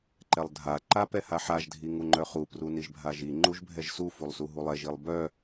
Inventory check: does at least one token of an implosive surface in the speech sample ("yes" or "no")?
no